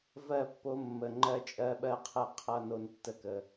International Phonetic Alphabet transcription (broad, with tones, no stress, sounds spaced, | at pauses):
v ɜ˦˨ pː o˧ mː ə˨ ŋ͡ǃ ɜ˧ t͡ʃʼ ɜ˧ ɓ ɜ˦ qʰ ɛ˦ qʰ ʌ˦ n o˦ n tː ə˦ k ə˧